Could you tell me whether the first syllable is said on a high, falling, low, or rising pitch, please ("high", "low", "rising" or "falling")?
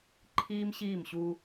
high